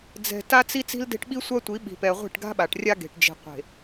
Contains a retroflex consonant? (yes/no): yes